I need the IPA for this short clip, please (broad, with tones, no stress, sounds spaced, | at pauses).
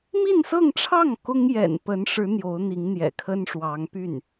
m i˥˧ n s ɤ˥˧ ŋ ʈ͡ʂʰ ɑ˥˩ ŋ k ʊ˥ ŋ j ɛ̰˨˩ n p ə˧˥ n ʂ ɻ̩˧˥ n̪ j o˧˥ ʊ̯ n̪ i˧˥ ŋ n̪ j ɛ̰˨˩ kʰ ə˥ n ʂ w ɑ˧˥ ŋ p y˥˩ n